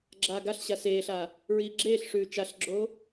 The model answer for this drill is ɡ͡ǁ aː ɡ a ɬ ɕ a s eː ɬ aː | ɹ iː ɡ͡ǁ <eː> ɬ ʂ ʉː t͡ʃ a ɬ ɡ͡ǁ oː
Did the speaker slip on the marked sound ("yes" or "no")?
no